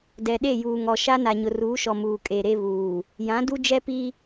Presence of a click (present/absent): absent